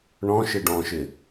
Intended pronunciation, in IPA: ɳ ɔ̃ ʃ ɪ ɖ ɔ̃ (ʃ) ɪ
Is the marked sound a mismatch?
no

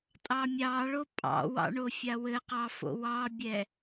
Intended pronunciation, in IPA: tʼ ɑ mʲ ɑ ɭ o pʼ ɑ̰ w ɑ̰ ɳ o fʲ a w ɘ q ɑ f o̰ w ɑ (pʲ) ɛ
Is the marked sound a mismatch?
yes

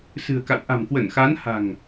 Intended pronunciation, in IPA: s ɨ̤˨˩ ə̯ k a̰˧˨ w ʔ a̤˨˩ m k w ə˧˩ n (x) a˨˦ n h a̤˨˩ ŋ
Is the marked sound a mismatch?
no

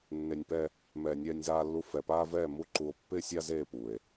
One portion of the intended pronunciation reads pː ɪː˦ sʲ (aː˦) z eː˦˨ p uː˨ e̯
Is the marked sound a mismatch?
no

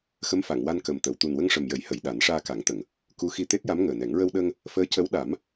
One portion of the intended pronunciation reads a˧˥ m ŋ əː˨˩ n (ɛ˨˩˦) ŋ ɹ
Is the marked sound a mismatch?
no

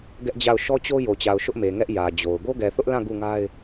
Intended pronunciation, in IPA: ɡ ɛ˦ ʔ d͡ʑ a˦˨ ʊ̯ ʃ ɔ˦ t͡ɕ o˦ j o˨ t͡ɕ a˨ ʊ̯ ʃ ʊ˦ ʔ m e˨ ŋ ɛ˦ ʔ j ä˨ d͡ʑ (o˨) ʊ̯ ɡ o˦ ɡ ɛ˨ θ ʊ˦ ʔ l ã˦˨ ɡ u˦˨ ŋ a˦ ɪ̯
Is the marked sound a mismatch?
no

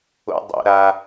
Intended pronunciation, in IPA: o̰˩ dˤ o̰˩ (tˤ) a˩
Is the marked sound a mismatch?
yes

